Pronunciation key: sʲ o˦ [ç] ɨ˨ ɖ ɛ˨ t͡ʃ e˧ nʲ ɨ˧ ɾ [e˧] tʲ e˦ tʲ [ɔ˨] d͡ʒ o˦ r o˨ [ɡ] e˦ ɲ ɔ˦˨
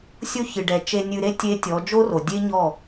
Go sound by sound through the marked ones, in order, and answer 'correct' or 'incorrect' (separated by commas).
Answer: correct, incorrect, incorrect, incorrect